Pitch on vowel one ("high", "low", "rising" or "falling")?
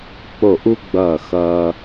falling